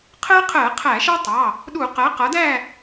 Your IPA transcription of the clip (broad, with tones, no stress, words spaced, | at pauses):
qʰɜ˦qʰɜ˧˩˧ qʰæ˧˩˧ʃɑ˦tˤɑ˩˧˩ | ɗu˧˩˧ qɜ˩˥qʌ˩˥dæ˥˨